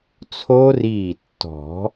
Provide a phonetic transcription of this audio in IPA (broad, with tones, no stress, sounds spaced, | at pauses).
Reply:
t͡sʰ o˦˥ r iː˧˩ tː ɔ̤˨˩˦